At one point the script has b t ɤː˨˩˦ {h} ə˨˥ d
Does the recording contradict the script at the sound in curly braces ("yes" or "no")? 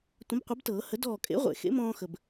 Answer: no